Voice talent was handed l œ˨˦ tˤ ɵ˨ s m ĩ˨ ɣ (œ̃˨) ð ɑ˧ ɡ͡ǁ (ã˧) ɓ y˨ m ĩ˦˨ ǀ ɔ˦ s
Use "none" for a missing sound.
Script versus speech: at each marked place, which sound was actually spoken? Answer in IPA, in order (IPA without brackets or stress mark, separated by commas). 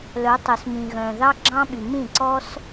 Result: œ̃˨, ɑ̃˧